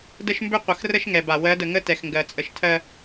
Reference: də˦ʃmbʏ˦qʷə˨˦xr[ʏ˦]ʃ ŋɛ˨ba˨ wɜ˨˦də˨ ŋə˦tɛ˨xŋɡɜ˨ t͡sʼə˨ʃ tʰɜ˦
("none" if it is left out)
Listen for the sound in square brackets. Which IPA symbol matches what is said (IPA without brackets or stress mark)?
ə˦